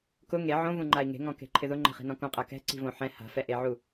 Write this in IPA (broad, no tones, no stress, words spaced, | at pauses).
kʊ ŋe ʕõvũŋ͡ǃai̯ ŋe̤ŋɔ̃ke̤ǃʰɪ ðʊŋ͡ǃɛ̤χi̤nɔ̃ kõqʼa kɛ̤ǀi̤võ ħɛ̃ ha̤fɛʔeʕu